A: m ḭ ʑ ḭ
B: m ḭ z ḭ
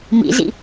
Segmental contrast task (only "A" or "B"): B